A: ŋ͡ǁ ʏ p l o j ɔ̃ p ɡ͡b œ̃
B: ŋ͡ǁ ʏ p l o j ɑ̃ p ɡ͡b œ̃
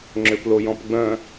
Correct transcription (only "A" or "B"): A